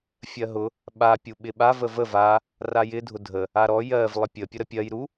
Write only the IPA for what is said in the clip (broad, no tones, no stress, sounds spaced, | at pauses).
fʲ ɜ ɦ ʊ | ɓ a pʲ u ɓ ɪ ɓ a v ə v ə v a | r a j ɪ dʱ ʊ dʱ ə | a ɾ ɔ j ɜ v lˠ ɪ pʲ ə pʲ ʊ ɾ ə pʲ ɜ j ɾ u